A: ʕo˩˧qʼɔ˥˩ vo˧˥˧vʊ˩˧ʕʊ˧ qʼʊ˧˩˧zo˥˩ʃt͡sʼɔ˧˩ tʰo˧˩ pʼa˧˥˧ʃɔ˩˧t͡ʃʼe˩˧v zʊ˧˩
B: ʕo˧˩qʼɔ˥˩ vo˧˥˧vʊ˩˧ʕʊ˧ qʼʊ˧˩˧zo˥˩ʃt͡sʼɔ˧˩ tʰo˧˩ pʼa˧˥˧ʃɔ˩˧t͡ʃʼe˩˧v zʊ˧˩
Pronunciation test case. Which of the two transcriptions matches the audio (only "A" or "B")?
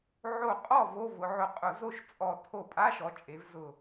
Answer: B